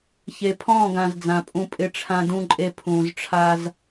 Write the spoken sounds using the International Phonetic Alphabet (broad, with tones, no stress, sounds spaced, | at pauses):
ç e˨ pʰ ɔ̃ː˦˨ ɡ ã˨ z d͡z ã˨ pʼ ũ˦ pʼ ɪ˦ ʈ͡ʂʰ ã˦ d ũ˦ ǃʼ e˦ pʰ ũː˨ z ʈ͡ʂʰ a˦ z